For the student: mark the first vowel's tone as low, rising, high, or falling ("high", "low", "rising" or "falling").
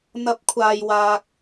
rising